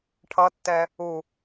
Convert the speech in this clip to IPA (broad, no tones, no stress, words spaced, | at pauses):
ʈʰʌtːɛ | u